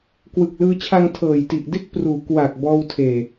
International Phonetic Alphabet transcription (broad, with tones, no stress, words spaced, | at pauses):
kwɯ˨˩k̚lɯː˧t͡ɕʰa˧ŋ tʰɤː˨˩jti˨˩ʔde˥˩k̚pruː˩˦ kwa˨˩k̚ bɔː˧wtʰeː˨˩